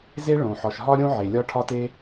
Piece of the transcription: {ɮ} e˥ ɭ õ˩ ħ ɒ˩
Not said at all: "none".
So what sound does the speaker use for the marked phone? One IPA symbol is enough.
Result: z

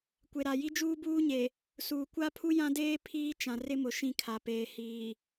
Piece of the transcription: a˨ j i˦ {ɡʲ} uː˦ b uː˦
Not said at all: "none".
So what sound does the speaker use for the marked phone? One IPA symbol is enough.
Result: d͡ʒ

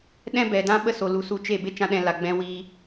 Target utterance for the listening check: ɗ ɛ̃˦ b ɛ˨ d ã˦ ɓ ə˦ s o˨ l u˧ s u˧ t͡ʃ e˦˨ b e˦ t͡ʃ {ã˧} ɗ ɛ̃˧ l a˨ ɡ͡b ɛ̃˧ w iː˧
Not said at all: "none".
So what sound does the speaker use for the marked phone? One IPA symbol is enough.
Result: ã˧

